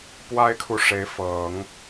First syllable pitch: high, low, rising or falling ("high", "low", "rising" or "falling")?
high